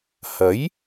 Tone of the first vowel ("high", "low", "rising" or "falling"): rising